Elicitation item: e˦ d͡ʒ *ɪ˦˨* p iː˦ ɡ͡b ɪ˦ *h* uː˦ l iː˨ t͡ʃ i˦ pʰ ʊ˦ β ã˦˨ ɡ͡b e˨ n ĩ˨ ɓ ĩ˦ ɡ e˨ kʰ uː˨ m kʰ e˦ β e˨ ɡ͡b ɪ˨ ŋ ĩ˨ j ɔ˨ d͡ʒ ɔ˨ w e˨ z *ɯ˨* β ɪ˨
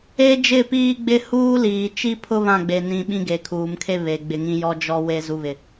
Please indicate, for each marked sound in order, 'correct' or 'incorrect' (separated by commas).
correct, correct, incorrect